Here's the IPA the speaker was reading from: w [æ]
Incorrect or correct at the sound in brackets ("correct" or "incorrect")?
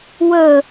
incorrect